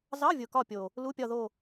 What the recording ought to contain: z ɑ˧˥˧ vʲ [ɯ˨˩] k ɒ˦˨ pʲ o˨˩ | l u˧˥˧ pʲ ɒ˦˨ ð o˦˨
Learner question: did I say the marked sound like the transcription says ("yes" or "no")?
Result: no